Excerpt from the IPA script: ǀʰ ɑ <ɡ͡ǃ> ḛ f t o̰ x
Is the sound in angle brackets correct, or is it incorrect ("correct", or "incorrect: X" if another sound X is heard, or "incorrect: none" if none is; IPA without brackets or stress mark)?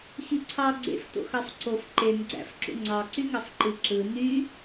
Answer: incorrect: ɡ͡ǀ